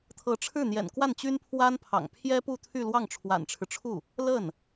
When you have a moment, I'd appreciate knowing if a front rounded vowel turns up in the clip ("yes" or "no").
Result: yes